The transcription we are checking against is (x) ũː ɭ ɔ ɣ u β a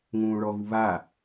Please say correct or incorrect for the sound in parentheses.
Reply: incorrect